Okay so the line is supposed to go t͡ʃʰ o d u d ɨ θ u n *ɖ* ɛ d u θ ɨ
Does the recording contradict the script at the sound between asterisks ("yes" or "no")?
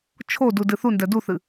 yes